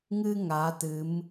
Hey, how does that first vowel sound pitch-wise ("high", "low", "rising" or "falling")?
high